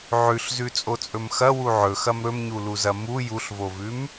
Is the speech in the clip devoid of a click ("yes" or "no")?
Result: yes